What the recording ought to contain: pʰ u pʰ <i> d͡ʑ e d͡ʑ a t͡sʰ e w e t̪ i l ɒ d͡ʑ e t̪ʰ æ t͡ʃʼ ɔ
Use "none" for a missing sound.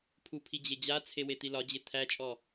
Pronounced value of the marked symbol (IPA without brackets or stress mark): i